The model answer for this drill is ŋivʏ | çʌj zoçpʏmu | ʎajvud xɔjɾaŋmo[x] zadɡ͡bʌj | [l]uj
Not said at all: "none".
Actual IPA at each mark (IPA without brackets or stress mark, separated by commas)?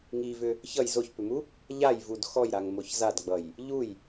ç, ʎ